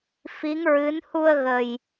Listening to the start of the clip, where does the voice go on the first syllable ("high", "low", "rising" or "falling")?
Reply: rising